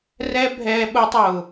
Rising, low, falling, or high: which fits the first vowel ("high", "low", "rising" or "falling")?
high